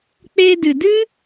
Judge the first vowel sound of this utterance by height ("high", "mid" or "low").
mid